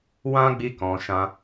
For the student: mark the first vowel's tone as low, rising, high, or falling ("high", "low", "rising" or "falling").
high